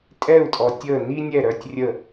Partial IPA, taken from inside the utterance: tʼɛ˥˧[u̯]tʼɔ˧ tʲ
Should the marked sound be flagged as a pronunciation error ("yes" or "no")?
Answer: no